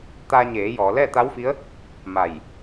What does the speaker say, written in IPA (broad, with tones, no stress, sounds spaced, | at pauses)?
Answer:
t̪ a˧ ɲ eː˩˧ j ɔː˩˧ l ɛː˥˨ t̪ a˧˥ w f i˧˥ ə̯ | m a˧˩ j